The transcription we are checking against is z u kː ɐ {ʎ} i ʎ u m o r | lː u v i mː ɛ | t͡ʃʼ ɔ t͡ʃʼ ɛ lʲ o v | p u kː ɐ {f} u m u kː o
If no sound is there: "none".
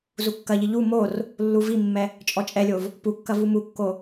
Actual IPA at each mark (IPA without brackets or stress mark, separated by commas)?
ʎ, v